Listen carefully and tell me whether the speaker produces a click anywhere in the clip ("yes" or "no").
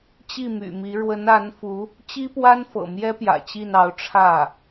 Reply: no